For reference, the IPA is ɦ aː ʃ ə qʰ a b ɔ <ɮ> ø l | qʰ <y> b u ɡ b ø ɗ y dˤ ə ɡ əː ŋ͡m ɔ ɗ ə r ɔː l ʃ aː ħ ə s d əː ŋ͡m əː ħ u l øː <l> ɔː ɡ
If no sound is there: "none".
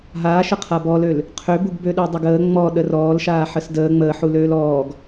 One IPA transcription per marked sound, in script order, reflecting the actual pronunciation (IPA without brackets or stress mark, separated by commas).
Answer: l, ø, l